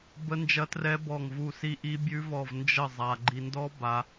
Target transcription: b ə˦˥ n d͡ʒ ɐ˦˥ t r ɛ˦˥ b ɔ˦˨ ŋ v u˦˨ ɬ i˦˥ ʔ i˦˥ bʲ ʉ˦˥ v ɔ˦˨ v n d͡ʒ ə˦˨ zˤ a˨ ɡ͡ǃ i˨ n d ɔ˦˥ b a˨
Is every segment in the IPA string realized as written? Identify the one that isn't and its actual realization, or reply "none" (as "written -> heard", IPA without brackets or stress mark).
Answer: ɬ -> s